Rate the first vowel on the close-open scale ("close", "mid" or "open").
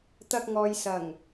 open